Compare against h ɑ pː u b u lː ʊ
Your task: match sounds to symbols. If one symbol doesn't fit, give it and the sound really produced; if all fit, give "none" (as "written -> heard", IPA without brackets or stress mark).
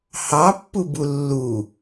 ʊ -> u